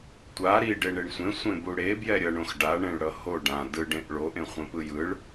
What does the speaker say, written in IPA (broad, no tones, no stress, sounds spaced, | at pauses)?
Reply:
tʷ a ɾ i ɖ e ɳ e ɳ sʷ ẽ sʷ ẽ b u ɽ e b j ɛ ɾʲ ʌ ɳ õ x ɖ a ɳ ẽ ɭ ɽ ʌ h o ɖ ã d ɯ ɖ ẽ ʔ ɭ o ʔ ẽ χʷ ẽ p ɯ j ɯ ɭ